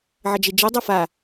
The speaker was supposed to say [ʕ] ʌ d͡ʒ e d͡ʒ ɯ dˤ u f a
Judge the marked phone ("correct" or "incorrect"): correct